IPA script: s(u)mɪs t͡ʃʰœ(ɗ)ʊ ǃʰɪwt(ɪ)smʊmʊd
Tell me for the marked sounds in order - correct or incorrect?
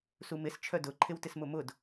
correct, incorrect, correct

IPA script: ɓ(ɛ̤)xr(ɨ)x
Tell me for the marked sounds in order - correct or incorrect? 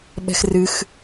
correct, correct

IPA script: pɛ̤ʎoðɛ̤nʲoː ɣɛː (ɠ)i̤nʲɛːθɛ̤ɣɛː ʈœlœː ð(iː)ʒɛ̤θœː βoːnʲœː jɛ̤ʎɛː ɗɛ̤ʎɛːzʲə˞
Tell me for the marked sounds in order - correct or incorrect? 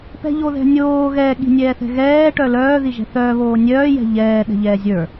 correct, incorrect

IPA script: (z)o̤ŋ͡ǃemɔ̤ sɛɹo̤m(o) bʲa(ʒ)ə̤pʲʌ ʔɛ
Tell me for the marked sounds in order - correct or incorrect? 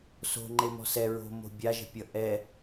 incorrect, incorrect, correct

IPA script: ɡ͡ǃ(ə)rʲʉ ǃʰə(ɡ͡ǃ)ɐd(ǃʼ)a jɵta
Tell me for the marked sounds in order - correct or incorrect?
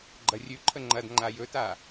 incorrect, incorrect, incorrect

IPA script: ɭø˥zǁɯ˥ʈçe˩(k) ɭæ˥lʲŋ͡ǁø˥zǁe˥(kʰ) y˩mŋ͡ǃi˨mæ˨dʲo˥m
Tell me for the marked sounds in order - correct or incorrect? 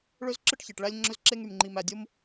incorrect, incorrect

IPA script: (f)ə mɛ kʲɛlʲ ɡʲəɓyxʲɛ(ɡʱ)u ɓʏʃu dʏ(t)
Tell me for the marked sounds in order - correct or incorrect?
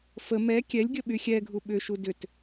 correct, correct, correct

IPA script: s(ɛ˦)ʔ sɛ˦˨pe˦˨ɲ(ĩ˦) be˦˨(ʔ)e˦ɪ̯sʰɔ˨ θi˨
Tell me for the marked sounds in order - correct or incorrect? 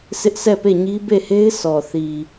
incorrect, incorrect, incorrect

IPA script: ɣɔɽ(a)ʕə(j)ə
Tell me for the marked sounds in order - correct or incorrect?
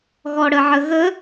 incorrect, incorrect

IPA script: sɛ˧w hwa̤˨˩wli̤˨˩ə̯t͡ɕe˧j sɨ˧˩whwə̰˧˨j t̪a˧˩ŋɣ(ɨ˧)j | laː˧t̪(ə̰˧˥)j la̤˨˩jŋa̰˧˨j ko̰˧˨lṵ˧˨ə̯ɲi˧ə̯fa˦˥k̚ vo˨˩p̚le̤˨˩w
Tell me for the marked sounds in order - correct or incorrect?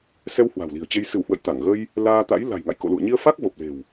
incorrect, incorrect

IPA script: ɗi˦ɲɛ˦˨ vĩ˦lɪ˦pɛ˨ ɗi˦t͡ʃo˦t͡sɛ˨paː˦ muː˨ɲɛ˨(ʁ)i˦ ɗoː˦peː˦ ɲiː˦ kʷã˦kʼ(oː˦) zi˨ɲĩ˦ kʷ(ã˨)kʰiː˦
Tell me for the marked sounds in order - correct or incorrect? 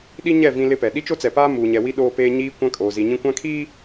incorrect, incorrect, incorrect

